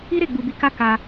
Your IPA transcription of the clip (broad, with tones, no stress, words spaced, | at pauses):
i˦ɾe˦˨ ɡ͡bu˧bi˧ka˦ ka˧